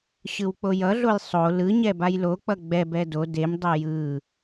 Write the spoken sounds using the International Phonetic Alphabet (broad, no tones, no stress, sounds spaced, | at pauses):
ɕ ɯ w k͡p o j ʌ ɮ o j sˤ o l ɯ ɲ ɛ b a j l o k͡p ʌ ɡ͡b ɛ b ɛ d o d e m dˤ o j ɯ